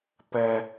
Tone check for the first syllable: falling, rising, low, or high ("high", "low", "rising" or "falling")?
high